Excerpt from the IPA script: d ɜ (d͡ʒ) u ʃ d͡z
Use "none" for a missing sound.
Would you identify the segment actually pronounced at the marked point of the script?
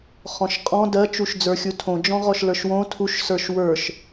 t͡ʃ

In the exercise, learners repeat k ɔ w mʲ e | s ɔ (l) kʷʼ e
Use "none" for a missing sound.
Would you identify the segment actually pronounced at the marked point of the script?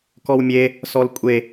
l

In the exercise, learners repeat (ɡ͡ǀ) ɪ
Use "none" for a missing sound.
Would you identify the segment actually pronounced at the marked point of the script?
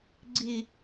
ɡ͡ǀ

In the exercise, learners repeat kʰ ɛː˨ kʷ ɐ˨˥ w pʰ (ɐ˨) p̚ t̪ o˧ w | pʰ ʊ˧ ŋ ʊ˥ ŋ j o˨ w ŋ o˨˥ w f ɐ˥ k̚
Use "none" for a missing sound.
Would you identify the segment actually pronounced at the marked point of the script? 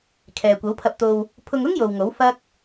ɐ˧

